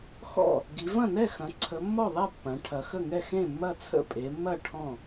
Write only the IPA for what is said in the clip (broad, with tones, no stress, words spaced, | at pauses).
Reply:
xɔ̰˥˩ | ɡi˩˧vɐ̃˥˩nɛ˥˩xɐ̃˩˧ ǀʰə˩˧ mːɔ˥˩ðˤɛ˥˩ pːɐ̃˩˧ ʈʰɐ˩˧xə˥˩ŋɛ˥˩ xẽ˥˩mːɐ˥˩ t͡sʰə̰˥˩pʼe˩˧mːɐ˥˩ ʈʰɔ̃˥˩